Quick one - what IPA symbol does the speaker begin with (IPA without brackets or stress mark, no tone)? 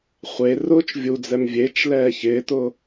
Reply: χʷ